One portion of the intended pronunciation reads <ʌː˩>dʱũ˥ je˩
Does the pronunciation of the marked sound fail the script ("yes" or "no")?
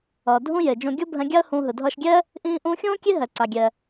no